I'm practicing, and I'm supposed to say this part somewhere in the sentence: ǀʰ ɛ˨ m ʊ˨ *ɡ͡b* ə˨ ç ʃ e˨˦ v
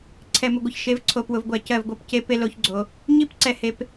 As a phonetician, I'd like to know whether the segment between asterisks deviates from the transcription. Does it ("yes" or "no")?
yes